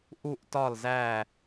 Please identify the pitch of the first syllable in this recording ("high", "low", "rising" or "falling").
falling